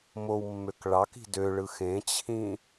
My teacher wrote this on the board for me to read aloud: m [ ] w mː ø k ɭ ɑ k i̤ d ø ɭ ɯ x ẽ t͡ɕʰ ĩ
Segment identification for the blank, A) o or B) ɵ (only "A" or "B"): A